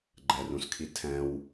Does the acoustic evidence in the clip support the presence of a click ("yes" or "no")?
yes